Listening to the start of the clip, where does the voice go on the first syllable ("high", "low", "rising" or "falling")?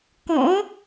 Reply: rising